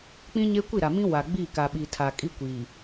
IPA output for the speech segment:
k͡p ĩ˦ ɲ e˦ kʷ i˦˨ ɾ a˨ m ĩ˦ w a˨ ɡ͡b i˦˨ k a˨ ɓ i˨ tʰ a˨ kʼ i˦ kʷ iː˨

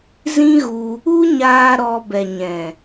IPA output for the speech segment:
z ĩ˦ ɣ u˧ | u˦ ɲ aː˧ ɾ ɔ˧ b ɛ˨ ɲ ɛ̃˨

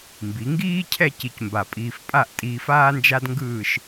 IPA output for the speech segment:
m b i˩˧ ŋ ɡ iː˥ cʰ ɛ˥˧ c i˧ c m b a˧˩ pʼ iː˧ f pʼ a˥˧ ʔ tʼ iː˧ f aː˥ n d͡ʒ a˥ d ŋ ɡ ɯː˥˧ ʃ

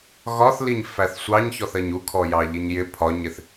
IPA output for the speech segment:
ɣ ɒ θ l i ɲ f æ θ sʷ ɑ ɲ ç ɔ θ ɜ ɲ u kʰ ɔ j ɑ ʎ i ɲ j ɪ pʰ ɒ ɲ ɪ θ

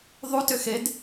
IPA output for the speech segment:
ðˤ u t ʏ x e d

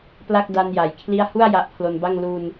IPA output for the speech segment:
p l a˥˩ k̚ d a˧ n j a˩˦ j kʰ l i˥˩ a̯ h u˥˩ a̯ j a˦˥ ʔ pʰ l o˧ n b a˥˩ ŋ l u˧ n

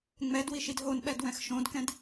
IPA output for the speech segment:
ŋ͡m ɛ d w i ʃ i d ɦ o n ɓ ɛ d w ɛ̃ x ʃ õ d k ɛ̃ d

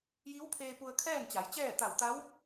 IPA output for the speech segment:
j i˧˥ w pʰ eː˧ p u˧ ə̯ kʰ ɛː˥˨ n t͡ɕ a˩˧ j t͡ɕ ɛː˥˨ t̪ a˧˩ w t̪ a˧˥ w

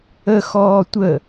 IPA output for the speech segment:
ə x ɔː tʷ ə

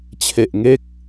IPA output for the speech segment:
t͡ɕʰ e˨˩ ʔ ŋ e˦˥ k̚

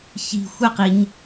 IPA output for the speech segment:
ç i̤ xʷ ɛ q i ɲ

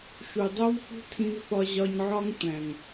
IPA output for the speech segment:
ʃ u˨ dˤ o˦ v f ṳ˦ tʰ ĩ˧ v f ɒ˧ ʑ ɒ˧ ɲ ʕ ɒ˦ ŋ tʷ æ̃˨ ŋ

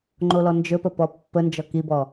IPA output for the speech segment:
ŋ͡ǃ o l ɔ n d͡ʒ ɵ p ə p ɔ pː ə n d͡ʒ ɔ k i b ɔ

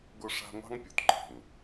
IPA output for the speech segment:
ɡ ʊ˦ ʂ a̤˦ ŋʷ ɑ̤˦ ŋ pʲ o˨ t ǃʰ ɛ̤˨ ŋ

